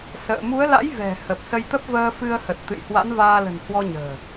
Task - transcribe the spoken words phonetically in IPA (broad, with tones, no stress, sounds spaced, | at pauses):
s ə̰ː˧˨ m u˨˦ ə̯ l a̰˧˥ j v ɛ̤˨˩ h ə˨˩ p̚ s ə˧ j t̪ ə˦˥ p̚ v əː˧ f ɨ˧ ə̯ h ə˨˩ t̚ t̪ ɨ̰˧˨ j h w a̰˧˥ n v aː˧ l ə̤˨˩ n h w ɔ˧ ɲ ə̤ː˨˩